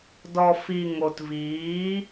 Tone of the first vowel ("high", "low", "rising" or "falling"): low